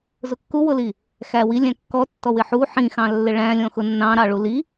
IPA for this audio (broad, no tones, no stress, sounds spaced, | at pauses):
z ʊ kː u w ʊ l i | x æ w i lʲ æ̃ kː ɔ tː ɔ w ɪ ħ u ħ ĩ x ɑ̃ lː ɪ ɭ æ̃ lʲ ɔ̃ x ʊ nː ɑ̃ ɾ ɑ ɭ u l i